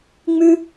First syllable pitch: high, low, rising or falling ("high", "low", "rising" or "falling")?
high